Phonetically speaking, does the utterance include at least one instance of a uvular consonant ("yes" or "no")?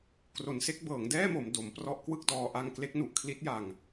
no